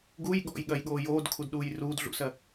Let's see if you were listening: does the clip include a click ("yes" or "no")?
no